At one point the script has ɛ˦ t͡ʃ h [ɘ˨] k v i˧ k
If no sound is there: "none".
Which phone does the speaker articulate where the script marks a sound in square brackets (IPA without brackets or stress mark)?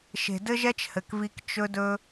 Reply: ɘ˨